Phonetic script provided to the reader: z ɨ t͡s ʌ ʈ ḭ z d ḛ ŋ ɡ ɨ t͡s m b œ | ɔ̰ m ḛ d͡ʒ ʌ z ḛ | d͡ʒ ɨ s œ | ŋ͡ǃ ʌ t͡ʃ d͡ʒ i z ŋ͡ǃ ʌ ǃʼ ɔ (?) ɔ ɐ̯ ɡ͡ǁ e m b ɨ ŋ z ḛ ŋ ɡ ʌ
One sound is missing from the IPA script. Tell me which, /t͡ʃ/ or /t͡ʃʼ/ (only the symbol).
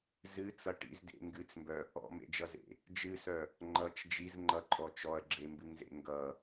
t͡ʃ